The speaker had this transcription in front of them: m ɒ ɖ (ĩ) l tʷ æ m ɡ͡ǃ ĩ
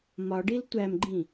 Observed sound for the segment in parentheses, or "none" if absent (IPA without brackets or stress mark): i